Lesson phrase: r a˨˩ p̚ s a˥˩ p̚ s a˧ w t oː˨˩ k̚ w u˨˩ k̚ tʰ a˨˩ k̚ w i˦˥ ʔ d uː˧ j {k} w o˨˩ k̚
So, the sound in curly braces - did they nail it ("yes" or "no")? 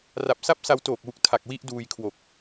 no